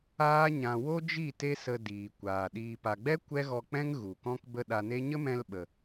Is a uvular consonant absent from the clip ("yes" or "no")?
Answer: yes